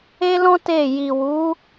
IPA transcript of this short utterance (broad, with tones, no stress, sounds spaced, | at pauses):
e˦ l ɔ̃˦ t e˦˨ j i˨ w u˨˦